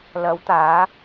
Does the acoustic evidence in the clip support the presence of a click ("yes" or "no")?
no